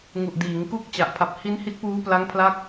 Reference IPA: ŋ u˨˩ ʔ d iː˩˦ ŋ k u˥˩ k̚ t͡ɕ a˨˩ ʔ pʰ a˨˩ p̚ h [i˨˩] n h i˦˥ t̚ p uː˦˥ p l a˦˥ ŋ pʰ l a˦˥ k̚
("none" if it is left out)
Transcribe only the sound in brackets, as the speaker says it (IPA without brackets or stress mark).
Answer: i˦˥